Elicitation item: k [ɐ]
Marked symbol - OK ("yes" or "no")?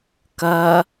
yes